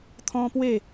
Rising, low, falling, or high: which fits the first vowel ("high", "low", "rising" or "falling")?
high